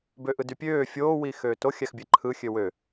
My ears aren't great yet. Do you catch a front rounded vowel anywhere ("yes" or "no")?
yes